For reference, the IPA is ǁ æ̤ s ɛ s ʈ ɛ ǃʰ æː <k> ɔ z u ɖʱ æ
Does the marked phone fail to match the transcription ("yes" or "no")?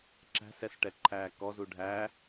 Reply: no